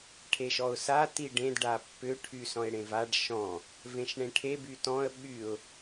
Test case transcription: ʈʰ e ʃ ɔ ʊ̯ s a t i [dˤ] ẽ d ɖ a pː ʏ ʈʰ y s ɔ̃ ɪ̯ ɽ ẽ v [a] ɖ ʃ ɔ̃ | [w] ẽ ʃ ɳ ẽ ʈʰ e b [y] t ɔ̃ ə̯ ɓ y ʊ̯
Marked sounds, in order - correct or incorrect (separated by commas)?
incorrect, correct, incorrect, correct